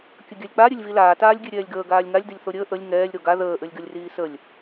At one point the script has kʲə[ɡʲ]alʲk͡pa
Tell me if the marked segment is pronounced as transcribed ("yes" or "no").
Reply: yes